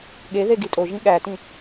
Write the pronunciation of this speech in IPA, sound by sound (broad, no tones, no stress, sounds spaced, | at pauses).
ɠ e ð e ɡ i tʼ o ʒ ĩ ɠ æ t ĩ